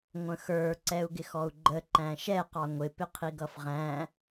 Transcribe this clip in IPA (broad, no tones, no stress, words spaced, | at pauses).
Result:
ŋʷə̃xə˞ ǀɛu̯ɡɪxɔu̯ɡ͡ǃə ǃæ̃ʃɛ qɑŋʷɪ pɪqʰiɡʌfʁæ̃